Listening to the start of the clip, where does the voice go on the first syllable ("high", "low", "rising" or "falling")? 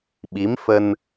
rising